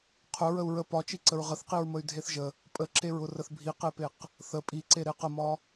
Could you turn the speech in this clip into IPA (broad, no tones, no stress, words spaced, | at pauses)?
qʰʊ ɹəu̯ɹə pɒt͡ʃi ǀəɹʁəθqiɹ məy̯dʱeθʒə | pʼəǁeɹʊ rəθbʱiqepeq | θə pʼiǀe ɾeqəmɒ